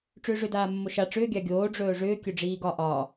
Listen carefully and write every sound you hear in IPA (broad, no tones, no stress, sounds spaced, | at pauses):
ʈ͡ʂ ʏː ʐ ʏ d aː mː o ʃ a ʈ͡ʂ ʏː ɡʲ a ɡʲ oː ɖ͡ʐ ɵː ʐ ʏː kʲ ɵ ɖ͡ʐ iː ɡ ɒ ʔ ɒː